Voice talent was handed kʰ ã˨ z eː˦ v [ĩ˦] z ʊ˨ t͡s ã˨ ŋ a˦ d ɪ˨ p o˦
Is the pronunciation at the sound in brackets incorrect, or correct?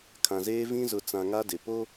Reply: correct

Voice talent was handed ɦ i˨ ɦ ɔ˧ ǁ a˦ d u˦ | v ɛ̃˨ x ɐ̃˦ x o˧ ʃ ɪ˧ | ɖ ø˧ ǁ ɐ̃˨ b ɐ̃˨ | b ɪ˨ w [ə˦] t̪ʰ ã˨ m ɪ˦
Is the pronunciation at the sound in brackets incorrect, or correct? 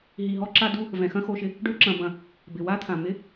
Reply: incorrect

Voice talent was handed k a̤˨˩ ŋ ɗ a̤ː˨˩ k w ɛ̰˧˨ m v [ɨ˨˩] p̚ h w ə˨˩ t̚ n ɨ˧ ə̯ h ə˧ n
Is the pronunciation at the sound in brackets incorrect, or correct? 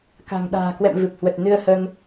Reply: correct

